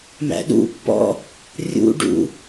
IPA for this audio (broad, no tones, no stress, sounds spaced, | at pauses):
m æ̰ ɗ ṵ pː ɔ̰ | rʲ ṵ ɖ ṵ